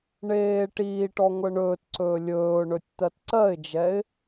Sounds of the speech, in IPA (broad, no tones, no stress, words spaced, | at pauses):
ɳeː ʈiːʈɔ ŋʷɜɳɵːtǀɵː lʲɵːʊ̯ɳɵtʲ t̪ɜtǀɜɪ̯d͡ʒɛɪ̯